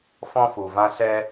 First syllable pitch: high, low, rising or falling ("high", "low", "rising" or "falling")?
high